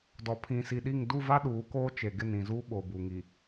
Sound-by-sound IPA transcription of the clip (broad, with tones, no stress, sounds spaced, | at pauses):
d ɔ˨ pʰ ĩ˨ s i˨ ɗ i˦˨ ŋ d u˦˨ v a˦ ɗ uː˨˦ k oː˦ t͡ʃ e˨ ɡ ɪ˦˨ n ĩ˨ z uː˦ ɓ oː˨ b u˨ ŋ i˨